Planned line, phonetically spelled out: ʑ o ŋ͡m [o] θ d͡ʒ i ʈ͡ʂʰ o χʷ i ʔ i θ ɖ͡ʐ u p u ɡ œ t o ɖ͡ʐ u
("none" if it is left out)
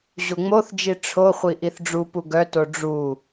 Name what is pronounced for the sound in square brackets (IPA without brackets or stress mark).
o